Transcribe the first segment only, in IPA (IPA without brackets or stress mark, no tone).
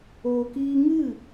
oː